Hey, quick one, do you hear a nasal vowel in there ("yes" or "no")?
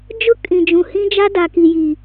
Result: yes